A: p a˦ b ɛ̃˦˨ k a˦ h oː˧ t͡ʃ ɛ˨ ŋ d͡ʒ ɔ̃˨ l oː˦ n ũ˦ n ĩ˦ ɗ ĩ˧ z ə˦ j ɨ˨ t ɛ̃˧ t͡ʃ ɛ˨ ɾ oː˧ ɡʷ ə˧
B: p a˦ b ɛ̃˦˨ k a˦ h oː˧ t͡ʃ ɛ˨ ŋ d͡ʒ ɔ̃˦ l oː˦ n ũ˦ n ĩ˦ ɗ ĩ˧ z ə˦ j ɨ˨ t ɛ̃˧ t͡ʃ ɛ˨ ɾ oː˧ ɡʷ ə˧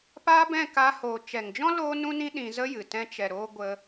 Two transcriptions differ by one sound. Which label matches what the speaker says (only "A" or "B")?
B